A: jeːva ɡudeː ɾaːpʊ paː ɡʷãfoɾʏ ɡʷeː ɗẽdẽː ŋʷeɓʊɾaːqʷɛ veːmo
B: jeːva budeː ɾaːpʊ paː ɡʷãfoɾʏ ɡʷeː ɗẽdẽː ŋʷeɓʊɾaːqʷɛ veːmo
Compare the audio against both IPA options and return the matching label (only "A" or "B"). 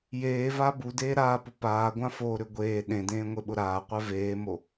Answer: B